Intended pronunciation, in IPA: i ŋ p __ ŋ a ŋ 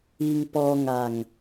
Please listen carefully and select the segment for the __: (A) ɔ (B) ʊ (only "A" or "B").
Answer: A